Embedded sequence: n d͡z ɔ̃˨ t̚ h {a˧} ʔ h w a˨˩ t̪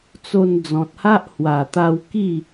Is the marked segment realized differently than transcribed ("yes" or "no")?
yes